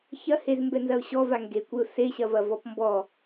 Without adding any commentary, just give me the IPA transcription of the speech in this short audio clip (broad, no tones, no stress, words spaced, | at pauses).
çɐhez mbɛnzɐʊ̯ɕɔva ŋɡekʷeʊ̯ seɕɐvɐ vɔpmbɔ